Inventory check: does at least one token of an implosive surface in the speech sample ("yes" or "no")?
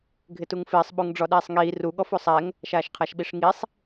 yes